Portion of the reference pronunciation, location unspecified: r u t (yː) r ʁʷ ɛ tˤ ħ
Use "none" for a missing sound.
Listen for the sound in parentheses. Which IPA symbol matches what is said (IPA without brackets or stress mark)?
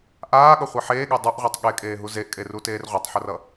eː